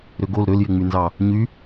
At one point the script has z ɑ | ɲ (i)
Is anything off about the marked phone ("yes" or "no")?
yes